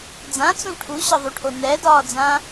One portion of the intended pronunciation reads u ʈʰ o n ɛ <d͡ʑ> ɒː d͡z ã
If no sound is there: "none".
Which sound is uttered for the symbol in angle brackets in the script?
d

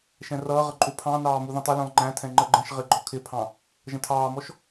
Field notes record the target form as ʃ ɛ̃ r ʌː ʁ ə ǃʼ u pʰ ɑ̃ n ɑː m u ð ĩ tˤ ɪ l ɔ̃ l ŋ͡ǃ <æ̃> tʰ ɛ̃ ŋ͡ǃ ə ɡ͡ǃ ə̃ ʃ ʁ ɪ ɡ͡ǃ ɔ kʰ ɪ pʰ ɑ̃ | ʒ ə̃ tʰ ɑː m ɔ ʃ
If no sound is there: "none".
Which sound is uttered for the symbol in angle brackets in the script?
æ̃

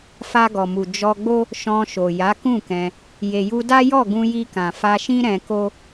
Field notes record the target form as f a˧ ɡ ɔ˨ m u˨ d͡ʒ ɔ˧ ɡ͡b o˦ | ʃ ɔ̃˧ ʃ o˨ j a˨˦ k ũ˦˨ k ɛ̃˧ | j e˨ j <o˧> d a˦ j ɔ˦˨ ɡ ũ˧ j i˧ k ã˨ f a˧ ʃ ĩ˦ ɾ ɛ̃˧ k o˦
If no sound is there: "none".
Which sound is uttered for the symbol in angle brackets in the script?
u˧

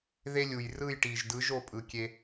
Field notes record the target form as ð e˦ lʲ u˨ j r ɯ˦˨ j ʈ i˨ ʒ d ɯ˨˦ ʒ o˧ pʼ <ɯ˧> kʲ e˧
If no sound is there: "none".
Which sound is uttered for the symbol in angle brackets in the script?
ɯ˨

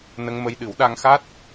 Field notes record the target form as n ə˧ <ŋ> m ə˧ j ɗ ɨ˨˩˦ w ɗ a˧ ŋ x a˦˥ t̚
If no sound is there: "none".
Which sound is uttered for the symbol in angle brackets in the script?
ŋ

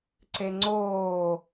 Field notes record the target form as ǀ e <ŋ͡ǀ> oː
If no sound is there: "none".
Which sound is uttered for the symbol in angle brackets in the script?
ŋ͡ǀ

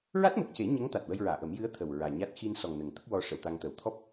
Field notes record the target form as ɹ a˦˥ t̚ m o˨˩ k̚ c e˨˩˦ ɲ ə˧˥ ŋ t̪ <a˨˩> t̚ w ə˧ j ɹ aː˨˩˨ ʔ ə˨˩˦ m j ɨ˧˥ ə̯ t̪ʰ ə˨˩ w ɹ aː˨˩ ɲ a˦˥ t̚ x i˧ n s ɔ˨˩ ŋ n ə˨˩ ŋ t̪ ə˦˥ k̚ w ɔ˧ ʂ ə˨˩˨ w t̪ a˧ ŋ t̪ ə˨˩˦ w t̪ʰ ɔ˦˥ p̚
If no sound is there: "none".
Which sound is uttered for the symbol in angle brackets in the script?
a˨˩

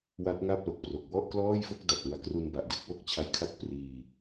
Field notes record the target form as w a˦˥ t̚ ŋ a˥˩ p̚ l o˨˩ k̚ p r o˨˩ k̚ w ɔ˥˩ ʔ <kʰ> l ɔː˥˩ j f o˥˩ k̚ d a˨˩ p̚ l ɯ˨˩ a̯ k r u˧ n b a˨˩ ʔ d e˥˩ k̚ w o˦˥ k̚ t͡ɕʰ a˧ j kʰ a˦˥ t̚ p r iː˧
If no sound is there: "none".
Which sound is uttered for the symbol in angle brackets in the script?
k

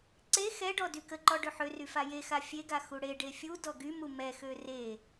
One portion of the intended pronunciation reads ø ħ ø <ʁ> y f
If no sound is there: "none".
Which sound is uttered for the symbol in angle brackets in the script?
r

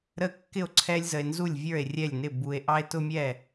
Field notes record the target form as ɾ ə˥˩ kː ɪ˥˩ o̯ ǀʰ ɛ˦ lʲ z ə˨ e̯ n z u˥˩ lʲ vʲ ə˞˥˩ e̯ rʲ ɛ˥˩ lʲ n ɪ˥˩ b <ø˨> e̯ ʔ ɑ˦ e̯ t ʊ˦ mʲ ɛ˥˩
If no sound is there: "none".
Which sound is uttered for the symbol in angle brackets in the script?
u˨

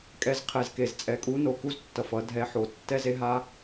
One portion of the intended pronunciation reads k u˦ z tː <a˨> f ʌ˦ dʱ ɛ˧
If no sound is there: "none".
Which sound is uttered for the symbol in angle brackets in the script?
ʌ˨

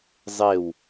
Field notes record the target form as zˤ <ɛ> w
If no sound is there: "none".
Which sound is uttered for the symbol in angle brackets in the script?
e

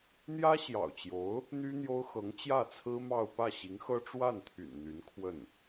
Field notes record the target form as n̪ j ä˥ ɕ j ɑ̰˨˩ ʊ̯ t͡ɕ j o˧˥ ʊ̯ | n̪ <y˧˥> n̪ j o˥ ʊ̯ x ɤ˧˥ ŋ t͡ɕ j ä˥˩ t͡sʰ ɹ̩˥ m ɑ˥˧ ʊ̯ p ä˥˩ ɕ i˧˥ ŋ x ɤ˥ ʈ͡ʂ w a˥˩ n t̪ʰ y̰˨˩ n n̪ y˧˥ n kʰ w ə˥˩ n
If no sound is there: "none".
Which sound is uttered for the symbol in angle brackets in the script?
y˥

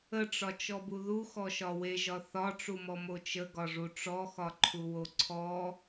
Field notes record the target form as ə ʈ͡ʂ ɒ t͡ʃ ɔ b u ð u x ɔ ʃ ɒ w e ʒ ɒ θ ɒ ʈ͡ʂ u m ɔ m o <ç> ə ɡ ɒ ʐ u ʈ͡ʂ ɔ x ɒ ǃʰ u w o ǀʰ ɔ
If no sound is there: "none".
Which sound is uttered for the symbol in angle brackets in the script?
t͡ʃ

